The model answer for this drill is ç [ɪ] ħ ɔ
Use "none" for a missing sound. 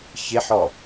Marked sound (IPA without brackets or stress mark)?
ɪ